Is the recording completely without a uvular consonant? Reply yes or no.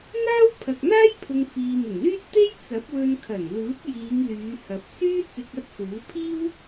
yes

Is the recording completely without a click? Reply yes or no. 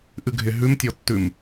yes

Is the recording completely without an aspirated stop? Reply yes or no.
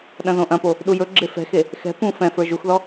yes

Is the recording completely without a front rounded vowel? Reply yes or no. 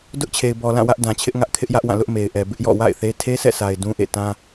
yes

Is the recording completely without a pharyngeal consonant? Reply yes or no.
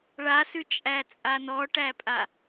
yes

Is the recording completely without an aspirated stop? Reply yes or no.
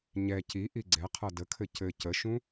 no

